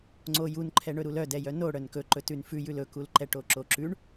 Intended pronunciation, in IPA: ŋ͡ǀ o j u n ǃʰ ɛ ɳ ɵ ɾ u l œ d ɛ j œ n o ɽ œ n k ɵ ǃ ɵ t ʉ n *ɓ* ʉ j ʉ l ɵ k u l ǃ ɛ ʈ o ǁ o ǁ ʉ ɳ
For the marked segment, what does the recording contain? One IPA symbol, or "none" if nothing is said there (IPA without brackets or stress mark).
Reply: f